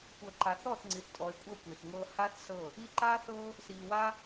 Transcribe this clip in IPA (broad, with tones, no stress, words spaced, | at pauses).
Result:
kʷɤ˨ǃa˨θɔ˦˨θ ŋ͡ǀi˨θtʼɔ˨e̯kʷʼɤ˦˨ kʷi˨θŋɤː˦ ha˦θsɤ˦˨ | i˧ǃa˦θɤ˦ | siː˨wa˦